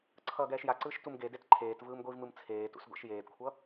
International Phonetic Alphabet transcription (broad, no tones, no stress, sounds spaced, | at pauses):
ǀʰ ʌː ɡ ɛː ʃ j a ǀ ɯː ʃ t u m ɡ e d e t ǃʰ eː t v ɯː m ɡʷ i v m ɯ m t͡sʰ eː t ṵ s ɡʷ ɛ̰ ʃ j eː d kʷʰ ʌ